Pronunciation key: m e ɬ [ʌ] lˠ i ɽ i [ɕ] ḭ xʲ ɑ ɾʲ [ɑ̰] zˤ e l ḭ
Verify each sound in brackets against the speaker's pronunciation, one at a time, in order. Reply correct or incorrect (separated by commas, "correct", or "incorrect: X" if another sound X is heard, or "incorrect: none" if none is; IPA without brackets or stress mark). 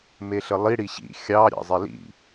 incorrect: ə, correct, correct